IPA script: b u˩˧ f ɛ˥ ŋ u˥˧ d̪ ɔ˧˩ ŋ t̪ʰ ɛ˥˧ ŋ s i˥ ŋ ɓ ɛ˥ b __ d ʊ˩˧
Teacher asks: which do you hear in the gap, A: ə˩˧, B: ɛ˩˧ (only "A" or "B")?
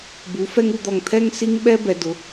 B